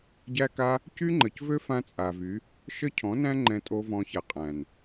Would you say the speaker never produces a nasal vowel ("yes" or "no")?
no